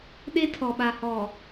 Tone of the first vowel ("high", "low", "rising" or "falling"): high